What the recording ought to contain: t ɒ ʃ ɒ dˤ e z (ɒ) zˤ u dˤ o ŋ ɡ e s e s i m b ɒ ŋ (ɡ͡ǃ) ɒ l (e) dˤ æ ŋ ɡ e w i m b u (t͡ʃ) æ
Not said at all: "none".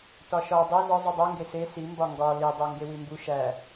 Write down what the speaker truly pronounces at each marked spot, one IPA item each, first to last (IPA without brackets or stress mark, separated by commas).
ɒ, ɡ, i, ʃ